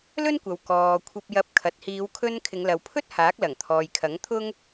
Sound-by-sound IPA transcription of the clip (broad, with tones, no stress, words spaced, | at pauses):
lɵ˥nkʷɐ˨wkɔː˨ kʷʰɐ˧p̚jɐ˧p̚kʰɐ˨t̚ hiː˨˧wkʰɵ˧n kʰɪ˨˧ŋlɐ˨w pʰɵ˥t̚ haː˨˥k̚lɐ˨˩ŋt̪ʰɔː˨jkʰɐ˨˥ŋ t̪ʰʊ˥ŋ